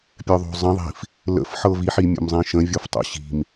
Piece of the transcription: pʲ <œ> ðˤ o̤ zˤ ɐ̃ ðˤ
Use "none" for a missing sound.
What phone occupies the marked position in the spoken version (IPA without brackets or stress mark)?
œ